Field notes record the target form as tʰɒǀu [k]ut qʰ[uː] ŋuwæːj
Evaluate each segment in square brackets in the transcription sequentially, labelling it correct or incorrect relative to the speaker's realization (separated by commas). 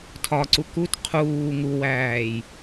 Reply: correct, correct